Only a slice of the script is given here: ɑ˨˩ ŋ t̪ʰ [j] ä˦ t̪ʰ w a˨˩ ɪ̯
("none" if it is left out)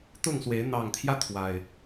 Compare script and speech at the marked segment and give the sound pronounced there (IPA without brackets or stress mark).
j